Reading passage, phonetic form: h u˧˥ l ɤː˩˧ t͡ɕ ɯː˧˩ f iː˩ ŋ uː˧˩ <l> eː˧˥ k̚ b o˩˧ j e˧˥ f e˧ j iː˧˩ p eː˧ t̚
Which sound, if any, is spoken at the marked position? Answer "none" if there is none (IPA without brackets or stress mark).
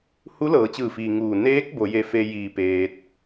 n